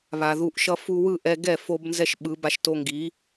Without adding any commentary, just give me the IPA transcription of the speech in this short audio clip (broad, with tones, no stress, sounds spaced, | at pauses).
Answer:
β a˨ ð u˧ ʔ ʃ ʌ˦ f u˧ w ɯ˦˨ ʔ ɛ˧ ɡ ɛ˦˨ f o˦ b n z ɛ˦ ʃ ɓ ɯ˨˦ b a˧ ʃ t o˧ ŋ ɡ i˨˦